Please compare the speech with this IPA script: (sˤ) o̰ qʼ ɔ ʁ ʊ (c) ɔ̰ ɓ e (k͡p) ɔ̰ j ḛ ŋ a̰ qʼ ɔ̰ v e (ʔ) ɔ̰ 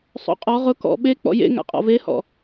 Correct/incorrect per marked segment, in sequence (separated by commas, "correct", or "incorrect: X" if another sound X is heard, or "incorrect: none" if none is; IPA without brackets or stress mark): correct, incorrect: k, correct, incorrect: h